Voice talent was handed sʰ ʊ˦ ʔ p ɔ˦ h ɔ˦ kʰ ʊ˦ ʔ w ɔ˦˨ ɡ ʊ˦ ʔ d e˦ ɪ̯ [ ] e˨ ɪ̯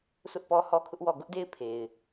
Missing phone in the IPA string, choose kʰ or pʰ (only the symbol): pʰ